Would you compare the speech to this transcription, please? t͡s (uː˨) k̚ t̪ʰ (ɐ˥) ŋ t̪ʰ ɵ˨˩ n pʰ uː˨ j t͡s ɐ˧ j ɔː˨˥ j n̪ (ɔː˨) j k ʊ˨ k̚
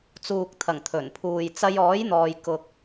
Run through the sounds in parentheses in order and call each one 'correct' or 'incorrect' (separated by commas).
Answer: correct, incorrect, correct